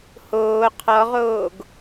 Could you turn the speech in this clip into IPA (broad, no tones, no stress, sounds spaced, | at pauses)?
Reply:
h oː qʰ ɔ ʁ oː ɡ